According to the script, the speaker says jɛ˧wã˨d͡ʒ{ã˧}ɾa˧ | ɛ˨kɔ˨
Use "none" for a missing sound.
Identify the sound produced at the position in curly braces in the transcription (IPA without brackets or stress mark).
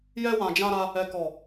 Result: ã˧